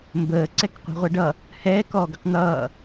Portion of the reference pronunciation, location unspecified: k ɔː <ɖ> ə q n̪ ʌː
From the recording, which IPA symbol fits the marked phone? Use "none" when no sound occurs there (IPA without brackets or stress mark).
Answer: ɡ